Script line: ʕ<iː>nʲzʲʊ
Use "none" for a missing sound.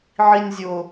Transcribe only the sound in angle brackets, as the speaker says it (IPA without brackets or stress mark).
i